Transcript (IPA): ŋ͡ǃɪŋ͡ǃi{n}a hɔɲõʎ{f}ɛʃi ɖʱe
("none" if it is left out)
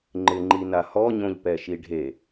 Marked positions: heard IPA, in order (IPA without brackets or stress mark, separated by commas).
n, p